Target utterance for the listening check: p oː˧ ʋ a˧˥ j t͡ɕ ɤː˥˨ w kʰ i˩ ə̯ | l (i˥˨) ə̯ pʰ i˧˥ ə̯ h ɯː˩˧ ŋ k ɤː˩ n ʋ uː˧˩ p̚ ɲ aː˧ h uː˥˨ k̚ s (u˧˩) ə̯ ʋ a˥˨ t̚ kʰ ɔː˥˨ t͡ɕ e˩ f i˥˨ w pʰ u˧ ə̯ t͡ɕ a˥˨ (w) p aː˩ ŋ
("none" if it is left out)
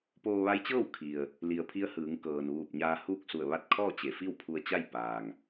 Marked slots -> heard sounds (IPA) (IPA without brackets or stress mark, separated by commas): i˩, u˧˩, j